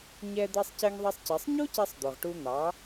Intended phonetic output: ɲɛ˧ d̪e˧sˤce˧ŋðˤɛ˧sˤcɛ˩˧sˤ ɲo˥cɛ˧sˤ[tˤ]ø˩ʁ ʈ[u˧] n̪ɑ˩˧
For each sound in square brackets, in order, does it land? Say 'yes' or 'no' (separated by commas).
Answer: no, yes